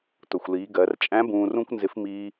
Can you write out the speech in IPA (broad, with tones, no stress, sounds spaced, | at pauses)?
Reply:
t ʊ˩ xʷ l iː˩˧ ɡ ɜ˩˧ r t͡ʃʼ æ̃˧˥ b ũː˧ r ũ˥ kʷ n z ɪ˧˥ f m iː˧